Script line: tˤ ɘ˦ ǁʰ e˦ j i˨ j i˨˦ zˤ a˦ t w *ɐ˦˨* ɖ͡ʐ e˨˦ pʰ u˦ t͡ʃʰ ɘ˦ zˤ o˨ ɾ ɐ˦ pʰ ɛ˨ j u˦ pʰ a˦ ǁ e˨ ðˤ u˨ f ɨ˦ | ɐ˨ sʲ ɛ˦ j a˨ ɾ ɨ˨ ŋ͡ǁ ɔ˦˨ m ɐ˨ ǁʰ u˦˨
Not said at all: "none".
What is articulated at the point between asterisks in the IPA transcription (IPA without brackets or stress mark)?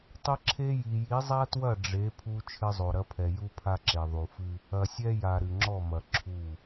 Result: ɐ˦˨